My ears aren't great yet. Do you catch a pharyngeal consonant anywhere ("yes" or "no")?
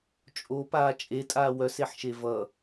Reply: yes